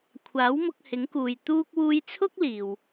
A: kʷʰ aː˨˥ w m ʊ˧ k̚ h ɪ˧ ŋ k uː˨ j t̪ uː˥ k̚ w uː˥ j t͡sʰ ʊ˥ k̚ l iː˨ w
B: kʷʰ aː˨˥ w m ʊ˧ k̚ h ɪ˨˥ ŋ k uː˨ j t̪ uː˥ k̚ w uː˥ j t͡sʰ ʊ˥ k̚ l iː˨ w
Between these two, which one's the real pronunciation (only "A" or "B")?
B